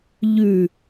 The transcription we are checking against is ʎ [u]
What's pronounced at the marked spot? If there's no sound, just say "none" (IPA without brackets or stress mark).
ʉ